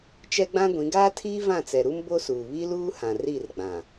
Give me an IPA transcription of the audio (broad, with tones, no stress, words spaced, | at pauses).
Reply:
t͡ʃɛ˦ɡ͡bã˦ɡʷĩ˨˦ ɡaː˦tʰiː˦ vã˦˨t͡sɛ˨ ɾu˦mbo˦suː˨ βi˦luː˦hã˨ ri˦˨rɡ͡bã˨